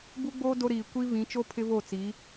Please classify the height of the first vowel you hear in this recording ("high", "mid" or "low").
high